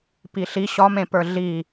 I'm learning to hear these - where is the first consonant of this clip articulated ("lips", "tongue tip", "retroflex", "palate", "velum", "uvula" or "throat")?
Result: lips